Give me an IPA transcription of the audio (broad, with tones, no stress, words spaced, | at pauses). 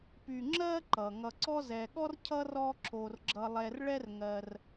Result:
py˨ŋ͡ǁɜ˦ǃʌ˩ ŋʌ˩ǀɔ˦zɛ˩ɠɔ˥r cʰʌ˥rɔ˦ ǁʰo˩rɡ͡ǁʌ˨lˠɛ˨r ɭɛ˦rŋɜ˨r